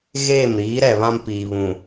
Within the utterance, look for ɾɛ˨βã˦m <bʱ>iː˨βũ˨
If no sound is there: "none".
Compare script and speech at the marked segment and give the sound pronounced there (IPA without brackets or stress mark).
p